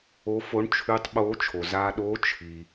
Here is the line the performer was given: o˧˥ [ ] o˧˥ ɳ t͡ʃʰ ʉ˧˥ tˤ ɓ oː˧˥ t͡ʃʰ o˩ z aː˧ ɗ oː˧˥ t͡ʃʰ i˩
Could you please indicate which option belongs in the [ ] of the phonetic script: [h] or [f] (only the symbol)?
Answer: f